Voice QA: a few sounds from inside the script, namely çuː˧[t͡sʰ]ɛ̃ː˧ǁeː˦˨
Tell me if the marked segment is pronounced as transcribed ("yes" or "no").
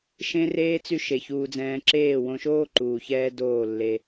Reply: no